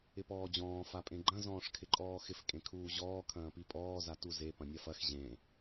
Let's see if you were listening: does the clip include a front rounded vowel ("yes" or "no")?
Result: no